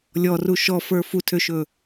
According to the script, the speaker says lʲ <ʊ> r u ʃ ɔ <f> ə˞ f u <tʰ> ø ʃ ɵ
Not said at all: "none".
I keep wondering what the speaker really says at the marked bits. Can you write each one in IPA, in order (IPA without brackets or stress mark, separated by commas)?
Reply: ɔ, f, tʰ